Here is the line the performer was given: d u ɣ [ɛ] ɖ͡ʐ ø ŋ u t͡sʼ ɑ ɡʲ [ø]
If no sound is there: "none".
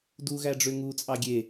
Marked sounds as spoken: æ, e

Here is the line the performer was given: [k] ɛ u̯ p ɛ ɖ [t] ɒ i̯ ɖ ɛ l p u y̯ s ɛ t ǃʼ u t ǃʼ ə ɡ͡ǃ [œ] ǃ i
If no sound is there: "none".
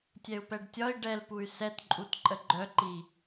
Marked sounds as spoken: tʲ, tʲ, œ

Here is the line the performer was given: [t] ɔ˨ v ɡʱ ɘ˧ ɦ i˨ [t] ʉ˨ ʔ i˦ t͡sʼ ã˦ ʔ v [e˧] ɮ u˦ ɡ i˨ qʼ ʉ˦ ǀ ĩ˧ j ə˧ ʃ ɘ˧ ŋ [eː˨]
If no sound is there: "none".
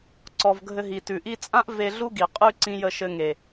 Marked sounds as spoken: ǀ, t, e˧, e˨

